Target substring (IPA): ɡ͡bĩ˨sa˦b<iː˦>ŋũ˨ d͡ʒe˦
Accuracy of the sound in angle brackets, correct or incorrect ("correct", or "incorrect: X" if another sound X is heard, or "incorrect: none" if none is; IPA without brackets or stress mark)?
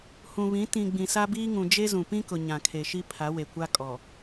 correct